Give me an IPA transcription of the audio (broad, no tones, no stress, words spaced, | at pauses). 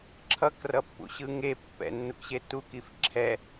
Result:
ǁʰʌkrʌpːṵɕɯ ŋe pːɛ̰nːukɕe tukif ǁʰɛ